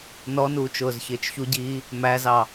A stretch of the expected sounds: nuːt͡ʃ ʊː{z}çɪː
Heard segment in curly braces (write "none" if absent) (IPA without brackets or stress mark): z